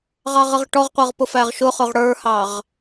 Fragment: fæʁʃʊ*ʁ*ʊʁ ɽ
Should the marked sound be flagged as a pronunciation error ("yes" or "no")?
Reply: yes